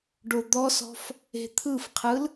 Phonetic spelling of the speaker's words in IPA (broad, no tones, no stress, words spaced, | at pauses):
ɖod̪ɔsɔ̤f | e̤t̪ʰɯfqʰɯl